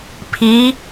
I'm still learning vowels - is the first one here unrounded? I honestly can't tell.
yes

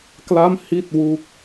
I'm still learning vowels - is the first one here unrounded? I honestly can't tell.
yes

